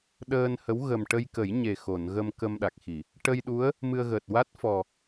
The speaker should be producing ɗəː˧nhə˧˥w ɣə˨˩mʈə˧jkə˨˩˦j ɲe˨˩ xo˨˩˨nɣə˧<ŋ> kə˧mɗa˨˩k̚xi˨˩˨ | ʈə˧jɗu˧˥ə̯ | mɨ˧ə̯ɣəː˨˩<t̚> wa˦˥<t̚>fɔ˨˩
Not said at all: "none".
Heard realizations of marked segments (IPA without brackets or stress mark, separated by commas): m, t̚, t̚